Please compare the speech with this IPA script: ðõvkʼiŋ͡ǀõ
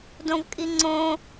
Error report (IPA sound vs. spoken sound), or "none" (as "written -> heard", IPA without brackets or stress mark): ð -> d